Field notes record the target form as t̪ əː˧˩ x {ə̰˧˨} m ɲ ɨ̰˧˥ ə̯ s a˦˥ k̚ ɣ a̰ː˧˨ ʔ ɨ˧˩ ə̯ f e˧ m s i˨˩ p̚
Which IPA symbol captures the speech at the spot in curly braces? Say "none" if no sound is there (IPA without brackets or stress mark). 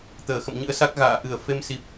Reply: ə̰˧˨